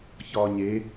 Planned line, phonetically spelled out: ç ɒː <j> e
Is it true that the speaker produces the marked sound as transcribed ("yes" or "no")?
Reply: no